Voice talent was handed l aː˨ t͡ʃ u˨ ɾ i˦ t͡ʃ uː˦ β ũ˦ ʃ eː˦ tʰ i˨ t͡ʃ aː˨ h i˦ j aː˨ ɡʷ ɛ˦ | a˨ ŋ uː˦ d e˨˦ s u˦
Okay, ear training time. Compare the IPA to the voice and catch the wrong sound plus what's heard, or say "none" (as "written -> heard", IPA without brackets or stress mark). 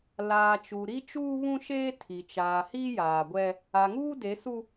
none